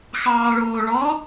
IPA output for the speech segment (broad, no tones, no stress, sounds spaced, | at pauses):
x ɑː ɭ oː ɭ ɔ